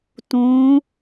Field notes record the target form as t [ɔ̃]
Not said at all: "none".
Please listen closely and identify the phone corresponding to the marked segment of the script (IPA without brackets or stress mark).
õ